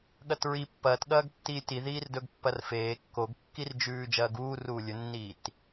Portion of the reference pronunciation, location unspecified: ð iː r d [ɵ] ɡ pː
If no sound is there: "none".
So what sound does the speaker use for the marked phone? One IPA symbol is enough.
ɵ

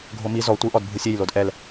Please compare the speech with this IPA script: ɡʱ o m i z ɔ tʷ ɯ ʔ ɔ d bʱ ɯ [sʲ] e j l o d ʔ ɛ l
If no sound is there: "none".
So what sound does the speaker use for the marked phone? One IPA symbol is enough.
sʲ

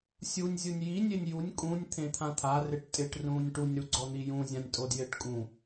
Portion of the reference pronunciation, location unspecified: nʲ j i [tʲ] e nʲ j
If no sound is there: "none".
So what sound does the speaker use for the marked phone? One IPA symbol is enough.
nʲ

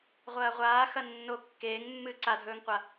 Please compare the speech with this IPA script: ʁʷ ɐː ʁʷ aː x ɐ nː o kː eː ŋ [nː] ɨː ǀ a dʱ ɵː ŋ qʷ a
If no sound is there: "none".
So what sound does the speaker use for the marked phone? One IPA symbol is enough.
mː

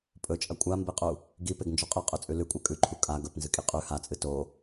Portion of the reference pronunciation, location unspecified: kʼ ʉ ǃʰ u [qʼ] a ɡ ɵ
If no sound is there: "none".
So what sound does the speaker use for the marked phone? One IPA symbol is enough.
kʼ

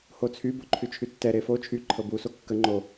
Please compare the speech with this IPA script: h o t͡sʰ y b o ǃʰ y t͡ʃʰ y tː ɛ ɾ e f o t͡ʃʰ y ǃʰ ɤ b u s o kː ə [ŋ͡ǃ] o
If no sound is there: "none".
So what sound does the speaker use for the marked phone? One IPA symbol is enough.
ŋ͡ǃ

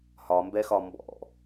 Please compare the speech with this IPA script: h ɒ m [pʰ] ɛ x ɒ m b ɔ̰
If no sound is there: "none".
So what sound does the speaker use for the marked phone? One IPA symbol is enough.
b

